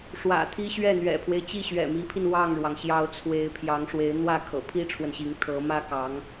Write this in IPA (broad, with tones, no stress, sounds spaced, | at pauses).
ʂ w ä̰˨˩ t̪ʰ i˥ ɕ ɥ ɛ˥˩ n̪ ɥ ɛ̰˨˩ pʰ w e˦ ɪ̯ t͡ɕ i˥˩ ɕ ɥ ɛ̰˨˩ m i˧˥ pʰ i˧ n w ɑ˥˩ ŋ ɻ w ɑ˩ ŋ ɕ j ɑ˧˥ ʊ̯ t͡sʰ w e˧˥ ɪ̯ pʰ j ɑ˧˥ ŋ ʂ w e˧˥ ɪ̯ n̪ w ä˥˩ kʰ ɤ̰˨˩ pʰ i˥ ʈ͡ʂʰ w ə˨ n ɕ i˧˥ ŋ t̪ʰ ɤ˧˥ m ä˥ k ɑ˧˥ ŋ